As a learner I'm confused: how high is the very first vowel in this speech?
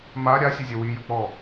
low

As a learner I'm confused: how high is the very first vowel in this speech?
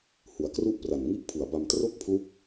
high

